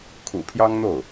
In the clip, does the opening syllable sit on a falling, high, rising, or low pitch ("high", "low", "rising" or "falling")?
low